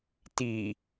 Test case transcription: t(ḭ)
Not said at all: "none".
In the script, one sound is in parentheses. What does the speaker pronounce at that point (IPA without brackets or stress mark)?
i